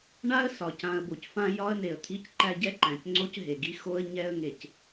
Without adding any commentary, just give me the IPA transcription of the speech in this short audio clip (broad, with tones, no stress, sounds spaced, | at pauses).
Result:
ɳ a˦ ə̯ s ɒ˨ c ã˨ ə̯ b o˨ c f ã˦ j ɒ˦ ə̯ n e˨ ə̯ t̪ʰ i˦ c ǃ æ˦ ɟ ɛ˦ ǃ æ̃˨ c ŋ͡ǀ o˦ c ɦ e˨ ɡ i˦ x o˦ ə̯ ɲ ɛ˦ ə̯ ŋ e˨ c